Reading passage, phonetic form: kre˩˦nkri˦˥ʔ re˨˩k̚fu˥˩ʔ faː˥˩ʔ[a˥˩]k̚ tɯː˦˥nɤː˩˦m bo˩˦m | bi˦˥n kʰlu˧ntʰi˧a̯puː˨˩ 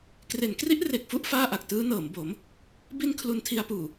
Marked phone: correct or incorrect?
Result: incorrect